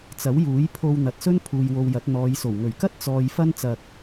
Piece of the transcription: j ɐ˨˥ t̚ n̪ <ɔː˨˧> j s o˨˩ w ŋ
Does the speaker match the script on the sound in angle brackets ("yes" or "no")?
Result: yes